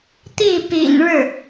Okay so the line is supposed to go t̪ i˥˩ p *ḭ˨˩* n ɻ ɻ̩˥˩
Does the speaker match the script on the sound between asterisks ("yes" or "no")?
yes